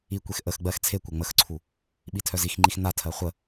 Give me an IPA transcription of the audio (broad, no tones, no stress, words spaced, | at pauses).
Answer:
ikʷex ʔəx ɡ͡bɜx t͡sʰe kʷɜŋ͡məxǀʰu | ɓitʰœzixŋ͡ǃix natʰɜ χʷə